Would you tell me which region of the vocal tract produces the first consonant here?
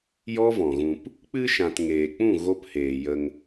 palate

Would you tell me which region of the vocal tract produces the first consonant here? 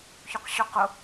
palate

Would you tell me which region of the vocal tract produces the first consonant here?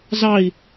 tongue tip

